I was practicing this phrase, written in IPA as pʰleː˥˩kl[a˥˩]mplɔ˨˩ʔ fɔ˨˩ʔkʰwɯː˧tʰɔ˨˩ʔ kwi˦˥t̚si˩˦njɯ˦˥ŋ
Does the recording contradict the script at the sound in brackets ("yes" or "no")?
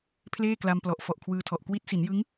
yes